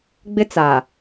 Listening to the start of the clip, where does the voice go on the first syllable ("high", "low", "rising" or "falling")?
high